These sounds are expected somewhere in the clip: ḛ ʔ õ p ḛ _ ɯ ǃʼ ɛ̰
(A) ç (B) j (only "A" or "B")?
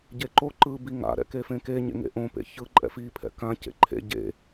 A